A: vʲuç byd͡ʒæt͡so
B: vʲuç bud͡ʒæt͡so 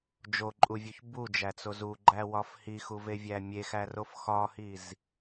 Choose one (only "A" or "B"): B